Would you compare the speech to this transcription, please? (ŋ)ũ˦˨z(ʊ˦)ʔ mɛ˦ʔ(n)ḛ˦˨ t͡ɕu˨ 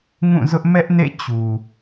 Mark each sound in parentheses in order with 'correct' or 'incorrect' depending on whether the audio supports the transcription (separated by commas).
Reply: correct, correct, correct